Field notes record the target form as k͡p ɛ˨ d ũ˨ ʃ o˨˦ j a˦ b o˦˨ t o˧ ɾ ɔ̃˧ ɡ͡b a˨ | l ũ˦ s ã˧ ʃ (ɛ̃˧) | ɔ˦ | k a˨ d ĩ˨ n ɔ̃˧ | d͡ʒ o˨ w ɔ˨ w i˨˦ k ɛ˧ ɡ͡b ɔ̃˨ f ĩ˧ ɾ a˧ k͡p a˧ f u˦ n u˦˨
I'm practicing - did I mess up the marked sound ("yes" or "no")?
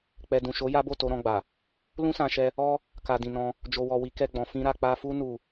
yes